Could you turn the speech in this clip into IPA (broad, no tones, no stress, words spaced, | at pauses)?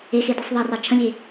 exedisˤ ðˤɑrɑ t͡ʃʰə̃lʲe